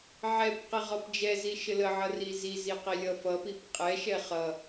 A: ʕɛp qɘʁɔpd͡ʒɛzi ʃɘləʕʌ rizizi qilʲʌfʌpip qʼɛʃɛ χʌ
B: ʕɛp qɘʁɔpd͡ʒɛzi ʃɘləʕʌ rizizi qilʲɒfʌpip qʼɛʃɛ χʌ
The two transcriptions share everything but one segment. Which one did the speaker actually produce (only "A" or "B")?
A